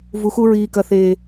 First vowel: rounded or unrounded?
rounded